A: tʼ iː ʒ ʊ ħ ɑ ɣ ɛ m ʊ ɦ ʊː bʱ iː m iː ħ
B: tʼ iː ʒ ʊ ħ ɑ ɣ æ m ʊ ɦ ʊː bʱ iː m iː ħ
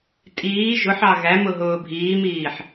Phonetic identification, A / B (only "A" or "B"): B